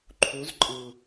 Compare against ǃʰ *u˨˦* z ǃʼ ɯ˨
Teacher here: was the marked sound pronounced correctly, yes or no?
yes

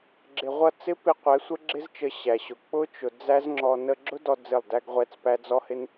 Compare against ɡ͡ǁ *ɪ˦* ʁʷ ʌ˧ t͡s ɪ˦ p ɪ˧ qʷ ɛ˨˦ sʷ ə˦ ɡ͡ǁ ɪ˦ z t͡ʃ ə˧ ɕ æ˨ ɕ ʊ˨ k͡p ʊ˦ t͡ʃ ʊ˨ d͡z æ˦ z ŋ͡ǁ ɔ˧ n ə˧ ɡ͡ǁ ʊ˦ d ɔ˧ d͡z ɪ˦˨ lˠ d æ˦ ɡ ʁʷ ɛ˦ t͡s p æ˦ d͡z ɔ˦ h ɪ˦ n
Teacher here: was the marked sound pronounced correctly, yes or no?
no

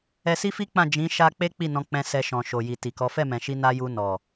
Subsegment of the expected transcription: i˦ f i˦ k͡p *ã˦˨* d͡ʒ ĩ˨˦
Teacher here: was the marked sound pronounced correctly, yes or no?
yes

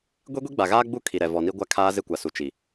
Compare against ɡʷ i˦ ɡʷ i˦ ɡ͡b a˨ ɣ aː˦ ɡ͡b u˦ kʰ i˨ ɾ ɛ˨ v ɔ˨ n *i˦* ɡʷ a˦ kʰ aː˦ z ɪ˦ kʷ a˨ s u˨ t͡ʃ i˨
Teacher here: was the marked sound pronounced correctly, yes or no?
yes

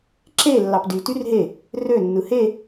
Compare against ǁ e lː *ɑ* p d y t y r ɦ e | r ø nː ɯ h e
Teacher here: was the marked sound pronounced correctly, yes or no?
yes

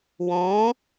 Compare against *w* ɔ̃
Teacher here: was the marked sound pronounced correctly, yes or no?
yes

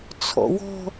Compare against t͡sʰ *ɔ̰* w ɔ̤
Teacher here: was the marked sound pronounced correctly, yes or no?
yes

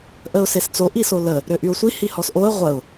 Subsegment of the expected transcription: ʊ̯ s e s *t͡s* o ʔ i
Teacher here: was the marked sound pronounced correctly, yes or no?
yes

